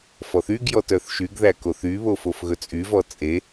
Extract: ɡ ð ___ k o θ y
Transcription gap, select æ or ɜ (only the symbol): æ